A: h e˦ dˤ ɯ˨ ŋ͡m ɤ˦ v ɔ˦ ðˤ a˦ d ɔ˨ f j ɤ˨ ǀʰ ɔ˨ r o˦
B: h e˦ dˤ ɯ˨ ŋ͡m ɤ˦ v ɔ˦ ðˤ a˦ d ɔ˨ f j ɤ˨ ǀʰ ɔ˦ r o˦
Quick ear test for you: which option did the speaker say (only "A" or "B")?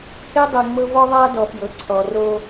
A